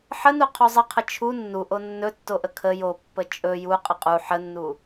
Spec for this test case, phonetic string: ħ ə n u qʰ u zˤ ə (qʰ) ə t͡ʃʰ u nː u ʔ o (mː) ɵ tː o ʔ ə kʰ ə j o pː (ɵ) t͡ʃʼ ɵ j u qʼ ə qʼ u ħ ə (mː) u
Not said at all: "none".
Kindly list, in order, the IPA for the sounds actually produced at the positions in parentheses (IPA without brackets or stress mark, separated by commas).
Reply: qʰ, nː, ə, nː